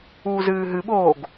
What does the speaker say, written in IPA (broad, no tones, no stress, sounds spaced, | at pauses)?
uː z ɨː ɦ ɨ ɓ oː ɡ